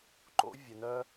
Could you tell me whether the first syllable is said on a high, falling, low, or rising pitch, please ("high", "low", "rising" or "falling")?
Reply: rising